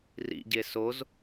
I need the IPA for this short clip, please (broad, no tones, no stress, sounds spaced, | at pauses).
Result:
r ḭ ɟ e s o z